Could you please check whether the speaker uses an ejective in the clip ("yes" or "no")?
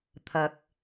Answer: no